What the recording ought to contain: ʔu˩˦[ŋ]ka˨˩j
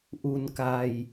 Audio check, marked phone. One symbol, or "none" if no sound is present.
n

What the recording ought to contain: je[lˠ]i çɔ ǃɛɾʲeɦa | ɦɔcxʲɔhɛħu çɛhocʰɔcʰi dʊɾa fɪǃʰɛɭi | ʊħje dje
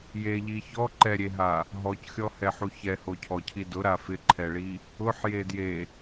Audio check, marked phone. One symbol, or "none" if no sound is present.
ʎ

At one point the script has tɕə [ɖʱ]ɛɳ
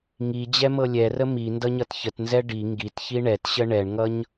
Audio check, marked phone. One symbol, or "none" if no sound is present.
ɳ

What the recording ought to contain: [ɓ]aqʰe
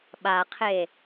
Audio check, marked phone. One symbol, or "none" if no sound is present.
ɓ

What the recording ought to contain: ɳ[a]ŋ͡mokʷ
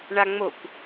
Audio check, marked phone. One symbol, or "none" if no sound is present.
a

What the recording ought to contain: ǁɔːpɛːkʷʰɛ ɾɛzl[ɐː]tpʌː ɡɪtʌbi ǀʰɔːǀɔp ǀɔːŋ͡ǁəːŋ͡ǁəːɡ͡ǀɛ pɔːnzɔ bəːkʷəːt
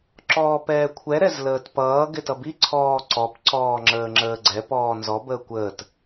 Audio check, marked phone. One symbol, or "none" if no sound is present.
əː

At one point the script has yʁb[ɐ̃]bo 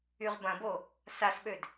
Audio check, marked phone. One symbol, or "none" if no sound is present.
ɐ̃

